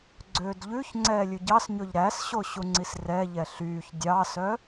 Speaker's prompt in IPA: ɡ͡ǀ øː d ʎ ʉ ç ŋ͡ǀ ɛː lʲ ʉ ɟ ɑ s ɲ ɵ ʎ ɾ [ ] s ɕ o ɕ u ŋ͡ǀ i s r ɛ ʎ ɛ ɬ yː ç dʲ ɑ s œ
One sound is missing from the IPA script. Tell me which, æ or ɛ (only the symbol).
æ